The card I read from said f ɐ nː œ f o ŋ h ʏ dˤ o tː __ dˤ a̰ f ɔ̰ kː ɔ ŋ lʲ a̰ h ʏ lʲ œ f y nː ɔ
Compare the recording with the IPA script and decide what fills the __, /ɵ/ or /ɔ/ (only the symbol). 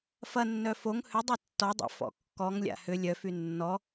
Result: ɔ